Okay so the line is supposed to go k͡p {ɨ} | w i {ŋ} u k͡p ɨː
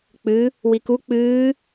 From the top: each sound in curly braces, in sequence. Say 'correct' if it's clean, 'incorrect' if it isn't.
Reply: correct, incorrect: k

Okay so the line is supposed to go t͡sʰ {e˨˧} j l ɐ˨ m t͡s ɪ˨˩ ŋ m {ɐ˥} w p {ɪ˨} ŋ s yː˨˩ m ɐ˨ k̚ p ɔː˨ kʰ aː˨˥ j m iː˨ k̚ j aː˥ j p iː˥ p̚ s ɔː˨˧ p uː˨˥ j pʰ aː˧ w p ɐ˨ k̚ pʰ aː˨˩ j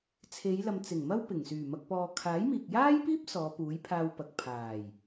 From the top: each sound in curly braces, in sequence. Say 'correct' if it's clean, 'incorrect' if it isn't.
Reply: correct, correct, incorrect: ɪ˨˩

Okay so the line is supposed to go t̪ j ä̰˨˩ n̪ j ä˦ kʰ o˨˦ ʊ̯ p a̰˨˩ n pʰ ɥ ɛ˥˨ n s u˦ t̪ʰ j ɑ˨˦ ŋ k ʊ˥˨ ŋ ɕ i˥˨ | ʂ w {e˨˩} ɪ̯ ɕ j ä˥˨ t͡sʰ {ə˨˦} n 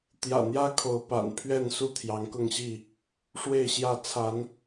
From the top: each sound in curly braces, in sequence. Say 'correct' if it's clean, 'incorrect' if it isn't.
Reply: incorrect: e˥˨, incorrect: a˨˦

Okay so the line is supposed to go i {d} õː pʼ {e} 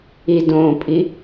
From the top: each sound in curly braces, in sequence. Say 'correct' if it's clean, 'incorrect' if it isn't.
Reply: correct, incorrect: i

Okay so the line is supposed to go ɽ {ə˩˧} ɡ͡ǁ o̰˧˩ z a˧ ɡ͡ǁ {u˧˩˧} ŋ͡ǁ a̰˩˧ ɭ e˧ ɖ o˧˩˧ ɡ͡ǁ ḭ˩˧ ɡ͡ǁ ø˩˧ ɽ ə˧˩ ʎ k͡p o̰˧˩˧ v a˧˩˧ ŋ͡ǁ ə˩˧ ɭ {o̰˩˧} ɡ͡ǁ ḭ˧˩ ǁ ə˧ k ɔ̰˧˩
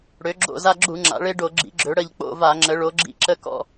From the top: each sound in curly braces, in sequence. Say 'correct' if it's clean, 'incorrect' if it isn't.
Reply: incorrect: ø˩˧, correct, incorrect: o˩˧

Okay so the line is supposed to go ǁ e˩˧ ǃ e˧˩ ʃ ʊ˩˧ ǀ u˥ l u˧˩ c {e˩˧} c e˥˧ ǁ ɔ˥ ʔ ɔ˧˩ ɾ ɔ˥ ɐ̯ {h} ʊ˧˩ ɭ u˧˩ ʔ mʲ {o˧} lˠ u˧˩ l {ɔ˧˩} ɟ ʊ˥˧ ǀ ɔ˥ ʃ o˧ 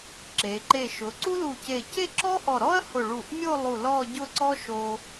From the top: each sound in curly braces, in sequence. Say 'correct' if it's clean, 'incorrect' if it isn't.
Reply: incorrect: e˧˩, correct, incorrect: o˥˧, incorrect: ɔ˥˧

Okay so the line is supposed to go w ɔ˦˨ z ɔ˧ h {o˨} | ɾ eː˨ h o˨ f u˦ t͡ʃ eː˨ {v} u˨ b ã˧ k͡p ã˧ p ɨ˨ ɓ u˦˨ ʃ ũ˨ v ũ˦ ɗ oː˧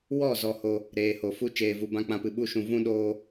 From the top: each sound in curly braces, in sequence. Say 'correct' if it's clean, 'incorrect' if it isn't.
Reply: incorrect: o˧, correct

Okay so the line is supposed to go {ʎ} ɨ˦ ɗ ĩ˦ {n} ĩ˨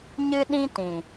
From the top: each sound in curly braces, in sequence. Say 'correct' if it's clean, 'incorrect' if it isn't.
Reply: incorrect: ɲ, incorrect: t

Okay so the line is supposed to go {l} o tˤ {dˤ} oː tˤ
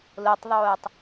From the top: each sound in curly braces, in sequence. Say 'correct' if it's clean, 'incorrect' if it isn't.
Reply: correct, incorrect: ðˤ

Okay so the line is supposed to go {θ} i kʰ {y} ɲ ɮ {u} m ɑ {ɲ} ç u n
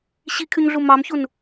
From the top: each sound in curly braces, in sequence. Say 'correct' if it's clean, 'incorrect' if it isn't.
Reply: incorrect: ɕ, correct, correct, incorrect: m

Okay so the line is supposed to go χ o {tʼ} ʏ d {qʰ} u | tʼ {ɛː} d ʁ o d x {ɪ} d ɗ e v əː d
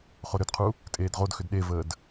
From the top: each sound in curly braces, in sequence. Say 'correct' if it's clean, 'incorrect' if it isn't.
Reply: incorrect: ɾ, correct, incorrect: eː, incorrect: ʏ

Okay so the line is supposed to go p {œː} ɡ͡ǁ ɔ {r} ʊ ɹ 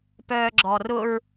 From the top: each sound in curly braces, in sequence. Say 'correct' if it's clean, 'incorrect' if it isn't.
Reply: correct, correct

